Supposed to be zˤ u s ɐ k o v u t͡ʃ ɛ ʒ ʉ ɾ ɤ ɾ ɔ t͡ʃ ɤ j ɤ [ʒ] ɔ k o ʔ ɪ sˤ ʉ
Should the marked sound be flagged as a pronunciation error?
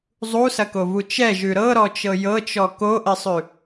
yes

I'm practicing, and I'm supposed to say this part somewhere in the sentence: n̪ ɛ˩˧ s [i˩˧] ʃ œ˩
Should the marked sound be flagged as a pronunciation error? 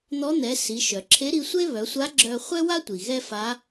no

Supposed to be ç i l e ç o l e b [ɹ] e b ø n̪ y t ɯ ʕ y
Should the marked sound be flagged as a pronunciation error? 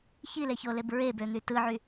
no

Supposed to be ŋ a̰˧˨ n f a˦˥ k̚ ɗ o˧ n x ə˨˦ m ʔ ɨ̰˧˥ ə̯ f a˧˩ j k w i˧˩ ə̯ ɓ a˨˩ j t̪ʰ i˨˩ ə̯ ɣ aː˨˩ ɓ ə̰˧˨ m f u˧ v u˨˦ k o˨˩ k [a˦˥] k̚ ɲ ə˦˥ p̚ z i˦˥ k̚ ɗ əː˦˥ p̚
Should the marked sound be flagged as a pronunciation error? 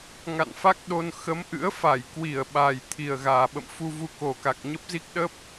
yes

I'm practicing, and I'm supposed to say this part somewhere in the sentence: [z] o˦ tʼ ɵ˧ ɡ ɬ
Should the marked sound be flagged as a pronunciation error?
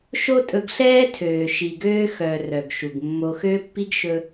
yes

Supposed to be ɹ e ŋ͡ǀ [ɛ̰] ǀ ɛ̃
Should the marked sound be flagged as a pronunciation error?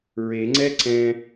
yes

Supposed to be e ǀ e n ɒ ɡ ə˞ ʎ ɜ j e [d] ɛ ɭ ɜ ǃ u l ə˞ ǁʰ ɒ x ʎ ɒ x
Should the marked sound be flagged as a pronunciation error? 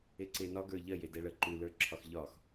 no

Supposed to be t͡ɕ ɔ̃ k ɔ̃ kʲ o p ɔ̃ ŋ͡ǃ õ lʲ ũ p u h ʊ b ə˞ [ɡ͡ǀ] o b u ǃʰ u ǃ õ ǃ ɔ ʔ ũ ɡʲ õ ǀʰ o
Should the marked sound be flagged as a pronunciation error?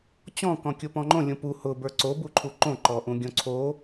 yes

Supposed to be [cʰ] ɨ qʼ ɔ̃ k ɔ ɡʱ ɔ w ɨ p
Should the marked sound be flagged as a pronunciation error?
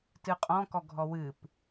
yes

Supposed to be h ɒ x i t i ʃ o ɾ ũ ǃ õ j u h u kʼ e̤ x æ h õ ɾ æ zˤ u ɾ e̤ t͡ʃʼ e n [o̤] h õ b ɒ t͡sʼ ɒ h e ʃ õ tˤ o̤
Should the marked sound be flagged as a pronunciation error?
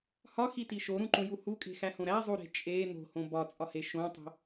no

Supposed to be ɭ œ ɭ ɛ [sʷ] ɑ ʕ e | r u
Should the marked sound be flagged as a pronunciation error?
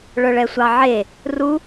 no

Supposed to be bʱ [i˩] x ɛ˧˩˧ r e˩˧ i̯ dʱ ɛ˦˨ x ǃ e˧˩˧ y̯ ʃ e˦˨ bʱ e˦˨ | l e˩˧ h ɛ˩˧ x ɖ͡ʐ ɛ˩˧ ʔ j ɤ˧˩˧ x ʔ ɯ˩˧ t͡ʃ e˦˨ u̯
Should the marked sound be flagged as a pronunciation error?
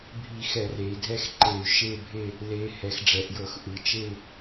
yes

